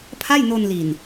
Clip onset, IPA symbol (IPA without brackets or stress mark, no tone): pʰ